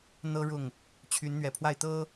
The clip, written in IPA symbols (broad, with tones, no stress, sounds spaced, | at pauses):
n̪ ɤ˥ ɻ ʊ˥˩ ŋ | t͡ɕʰ y˧˥ n n̪ ɥ ɛ˨˩ pʰ w a˥˩ ɪ̯ t̪ ɤ˥